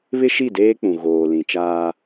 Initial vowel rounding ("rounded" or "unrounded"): unrounded